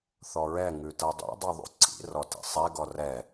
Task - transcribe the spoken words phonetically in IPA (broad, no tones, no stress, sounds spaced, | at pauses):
θ ɔ ɹ ɛ ŋ ʉ t ɤ dˤ ḭ dˤ ʉ ðˤ ṵ ǀʰ ḭ r ɔ t ḭ sˤ ɛ ɡ ɔ r ɛ